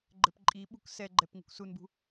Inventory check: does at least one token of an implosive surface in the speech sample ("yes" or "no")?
yes